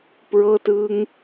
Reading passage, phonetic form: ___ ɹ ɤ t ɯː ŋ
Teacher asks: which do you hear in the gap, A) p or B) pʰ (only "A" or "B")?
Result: A